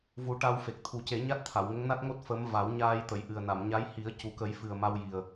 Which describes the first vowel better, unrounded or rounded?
rounded